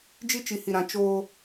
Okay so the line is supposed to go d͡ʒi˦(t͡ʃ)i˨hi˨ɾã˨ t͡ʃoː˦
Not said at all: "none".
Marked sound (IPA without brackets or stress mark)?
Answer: t͡ʃ